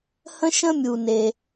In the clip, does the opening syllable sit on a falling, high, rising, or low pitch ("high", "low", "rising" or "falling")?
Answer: high